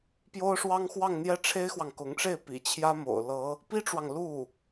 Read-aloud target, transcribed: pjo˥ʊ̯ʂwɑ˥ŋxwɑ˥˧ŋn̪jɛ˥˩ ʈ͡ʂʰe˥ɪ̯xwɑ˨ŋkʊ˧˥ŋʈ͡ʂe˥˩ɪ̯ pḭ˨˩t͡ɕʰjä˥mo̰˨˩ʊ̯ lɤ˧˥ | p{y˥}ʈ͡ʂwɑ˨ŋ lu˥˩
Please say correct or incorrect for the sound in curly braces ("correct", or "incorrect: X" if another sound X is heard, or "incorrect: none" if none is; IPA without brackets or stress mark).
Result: incorrect: i˥